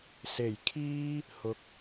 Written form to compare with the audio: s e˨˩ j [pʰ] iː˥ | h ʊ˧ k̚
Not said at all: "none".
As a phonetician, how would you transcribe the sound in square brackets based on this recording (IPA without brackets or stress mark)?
kʰ